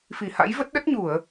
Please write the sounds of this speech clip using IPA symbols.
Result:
f i˧˩ h a̰˧˥ j v ə˦˥ t̚ ɗ ə˦˥ t̚ ɲ u˧˩˨ ə̯

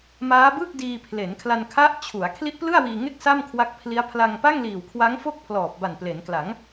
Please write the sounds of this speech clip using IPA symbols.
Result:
m aː˦˥ b ɯ˥˩ k̚ d iː˧ pʰ l e˩˦ n kʰ l a˧ n kʰ a˦˥ ʔ t͡ɕʰ u˩˦ a̯ kʰ l i˦˥ ʔ p l ɯ˥˩ a̯ w iː˧ ŋ e˥˩ k̚ s a˥˩ m kʰ w a˦˥ k̚ pʰ l i˦˥ a̯ pʰ l a˧ ŋ p a˥˩ ŋ l iː˨˩ w kʰ w a˦˥ ŋ f o˥˩ k̚ pʰ l ɔː˨˩ p̚ b a˨˩ n p l e˩˦ n k l a˩˦ ŋ

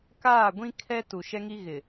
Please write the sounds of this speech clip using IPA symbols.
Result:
k aː˦˨ ɡʷ ĩ˦ kʰ ɛ˦ t u˨ ʃ ɛ˦ ŋ i˦ ɣ ɪ˨

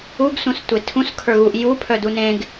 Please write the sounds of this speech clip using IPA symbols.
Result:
u ɡ s ũ s tʷ e tʰ ũ s kʰ ə˞ ɣ u ʔ j u pʰ œ d u n ẽ ɡ

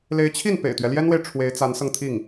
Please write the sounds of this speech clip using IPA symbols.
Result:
l e˧˥ ɪ̯ t͡ɕʰ i˥˩ n p ḛ˨˩ ɪ̯ t̪ ɥ ɛ˦ l j ɛ˥ n w e˨ ɪ̯ ʈ͡ʂʰ w e˧˥ ɪ̯ t͡s a˧˥ n s ɤ˧ ŋ t̪ʰ i˥˩ ŋ

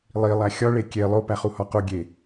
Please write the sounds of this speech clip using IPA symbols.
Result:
lˠ i lˠ æ xʲ ɒ ɭ e kʲ e lˠ o p æ χ u h ɒ q o ɡʲ e

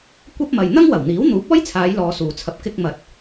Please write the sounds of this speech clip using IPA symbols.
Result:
kʷ ɐ˥ p̚ m ɐ˨ j n̪ ɐ˥ ŋ w ɐ˨˩ w n̪ iː˨˥ w n̪ uː˨˥ p̚ ɔː˥ j t͡sʰ aː˨˧ j l ɔː˧ s uː˨ t͡sʰ ɐ˧ p̚ k ɪ˧ k̚ m ɐ˨˥ t̚

